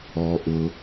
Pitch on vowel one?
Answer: low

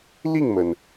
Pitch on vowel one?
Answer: falling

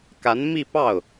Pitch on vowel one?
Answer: rising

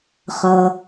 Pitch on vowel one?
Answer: low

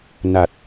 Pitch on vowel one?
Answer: low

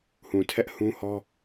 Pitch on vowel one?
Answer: low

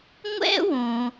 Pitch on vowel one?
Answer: high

